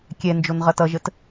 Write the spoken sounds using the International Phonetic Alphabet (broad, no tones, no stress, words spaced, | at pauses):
kʲɛ nd͡ʒonʁʌtʌʒət